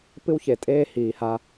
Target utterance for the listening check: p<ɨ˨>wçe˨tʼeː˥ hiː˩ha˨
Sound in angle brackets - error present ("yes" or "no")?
yes